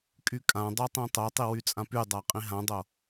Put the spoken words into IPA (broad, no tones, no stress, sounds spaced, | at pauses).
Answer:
kʼ y kʼ ã dˤ o tˤ ĩ tˤ o tˤ i w y t͡sʼ ã p y dˤ a qʼ ĩ ɦ ã dˤ o